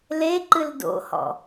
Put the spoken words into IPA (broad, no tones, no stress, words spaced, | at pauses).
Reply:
leǃɨl do̰hɔ̰